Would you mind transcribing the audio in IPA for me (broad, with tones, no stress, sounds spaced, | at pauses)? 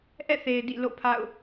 ʔ ɛ̰˦˨ θ e˨ ɪ̯ d ḭ˦˨ l o̰˦˨ pʰ a̰˦˨ ʊ̯